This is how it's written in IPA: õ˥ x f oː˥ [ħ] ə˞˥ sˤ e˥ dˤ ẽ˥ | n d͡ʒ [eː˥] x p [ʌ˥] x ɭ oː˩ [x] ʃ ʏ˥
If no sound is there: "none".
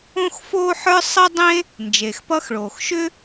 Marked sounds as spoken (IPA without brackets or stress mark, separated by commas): ħ, eː˩, ʌ˥, x